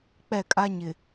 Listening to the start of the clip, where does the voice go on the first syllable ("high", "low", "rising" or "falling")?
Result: falling